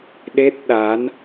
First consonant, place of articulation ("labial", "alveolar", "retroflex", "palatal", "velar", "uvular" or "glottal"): alveolar